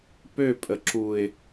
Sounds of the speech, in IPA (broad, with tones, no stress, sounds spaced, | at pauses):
p ø˦˨ pʼ ə˨ ǁ u˨ ɪ̯